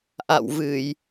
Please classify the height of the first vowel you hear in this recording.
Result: low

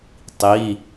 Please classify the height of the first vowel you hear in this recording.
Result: high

